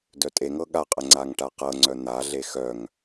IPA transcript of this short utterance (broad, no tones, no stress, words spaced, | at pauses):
dœtʼeŋɤ ɠaqʼə ŋ͡ǀaŋʈaqɤŋ͡ǀœ n̪aɮe xœŋ